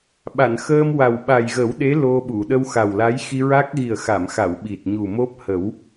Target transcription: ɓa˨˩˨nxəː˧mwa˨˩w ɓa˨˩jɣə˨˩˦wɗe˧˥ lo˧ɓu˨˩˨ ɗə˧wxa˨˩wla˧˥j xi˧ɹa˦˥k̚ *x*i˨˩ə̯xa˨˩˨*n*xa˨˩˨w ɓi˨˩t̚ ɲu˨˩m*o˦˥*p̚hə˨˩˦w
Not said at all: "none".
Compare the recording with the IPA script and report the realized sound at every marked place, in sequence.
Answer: ɣ, m, o˦˥

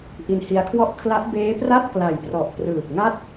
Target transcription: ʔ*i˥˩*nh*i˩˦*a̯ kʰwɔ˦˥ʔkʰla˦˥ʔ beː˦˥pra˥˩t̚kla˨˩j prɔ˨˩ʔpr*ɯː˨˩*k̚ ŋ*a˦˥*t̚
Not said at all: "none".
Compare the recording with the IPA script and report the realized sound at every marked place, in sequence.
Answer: i˧, i˧, ɯː˨˩, a˥˩

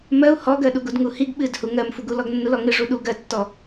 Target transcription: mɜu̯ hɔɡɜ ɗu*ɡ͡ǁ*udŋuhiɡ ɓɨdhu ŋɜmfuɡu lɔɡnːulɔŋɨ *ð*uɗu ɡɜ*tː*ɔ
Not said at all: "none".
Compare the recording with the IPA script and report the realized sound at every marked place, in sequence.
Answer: ɡ, ʐ, tː

